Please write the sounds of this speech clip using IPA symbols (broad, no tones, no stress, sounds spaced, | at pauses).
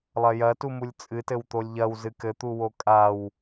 lˠ ɐ j ɐ t u m u lʲ t͡sʼ ɨ t ɘ w t̪ o lʲ ʎ ɐ w z ɨ k ɘ t̪ u w o kʼ a w